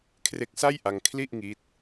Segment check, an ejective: absent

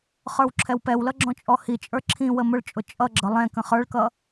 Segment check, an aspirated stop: present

